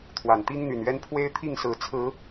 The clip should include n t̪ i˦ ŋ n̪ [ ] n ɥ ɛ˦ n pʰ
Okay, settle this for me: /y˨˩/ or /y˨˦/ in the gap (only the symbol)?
y˨˩